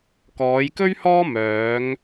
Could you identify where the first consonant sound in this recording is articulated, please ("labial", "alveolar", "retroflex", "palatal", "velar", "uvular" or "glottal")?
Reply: velar